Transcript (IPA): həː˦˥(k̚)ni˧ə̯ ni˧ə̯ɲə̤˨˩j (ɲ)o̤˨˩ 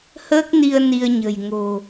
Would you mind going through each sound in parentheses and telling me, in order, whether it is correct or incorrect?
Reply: correct, incorrect

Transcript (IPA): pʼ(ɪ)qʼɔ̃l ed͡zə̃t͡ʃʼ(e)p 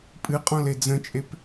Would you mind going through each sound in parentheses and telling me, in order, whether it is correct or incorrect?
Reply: incorrect, correct

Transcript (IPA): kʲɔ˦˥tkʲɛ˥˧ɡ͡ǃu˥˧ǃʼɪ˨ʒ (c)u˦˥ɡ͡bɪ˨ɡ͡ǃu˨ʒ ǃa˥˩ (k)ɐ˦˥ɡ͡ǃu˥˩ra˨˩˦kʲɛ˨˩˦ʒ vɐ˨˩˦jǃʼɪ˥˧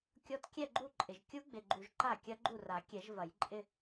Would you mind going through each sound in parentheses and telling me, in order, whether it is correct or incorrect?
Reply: incorrect, incorrect

